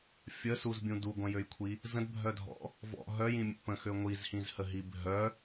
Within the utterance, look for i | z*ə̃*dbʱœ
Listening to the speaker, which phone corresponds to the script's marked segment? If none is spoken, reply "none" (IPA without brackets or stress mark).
ə̃